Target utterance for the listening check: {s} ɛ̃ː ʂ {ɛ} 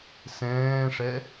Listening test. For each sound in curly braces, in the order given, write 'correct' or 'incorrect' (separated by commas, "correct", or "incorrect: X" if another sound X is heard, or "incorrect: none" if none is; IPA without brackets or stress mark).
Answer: correct, correct